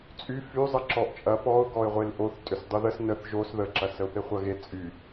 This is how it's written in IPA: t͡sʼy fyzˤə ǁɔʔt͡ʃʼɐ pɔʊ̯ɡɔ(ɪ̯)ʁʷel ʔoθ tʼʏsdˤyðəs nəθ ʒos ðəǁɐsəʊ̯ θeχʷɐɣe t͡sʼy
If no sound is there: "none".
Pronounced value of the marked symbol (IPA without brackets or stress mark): ɪ̯